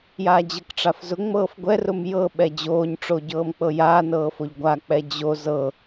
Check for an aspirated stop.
absent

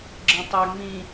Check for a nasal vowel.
present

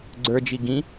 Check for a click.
present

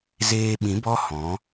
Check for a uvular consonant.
absent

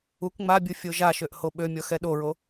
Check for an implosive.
present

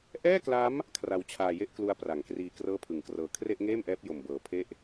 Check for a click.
absent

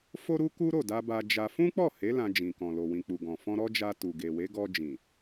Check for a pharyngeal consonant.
absent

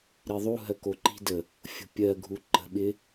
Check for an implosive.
present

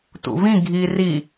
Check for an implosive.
absent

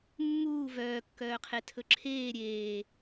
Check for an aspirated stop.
present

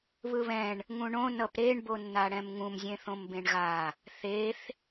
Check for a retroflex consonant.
present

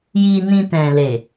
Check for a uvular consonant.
absent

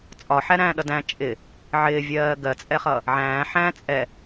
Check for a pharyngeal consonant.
present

